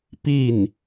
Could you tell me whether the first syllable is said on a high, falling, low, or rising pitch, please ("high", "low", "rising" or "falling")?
falling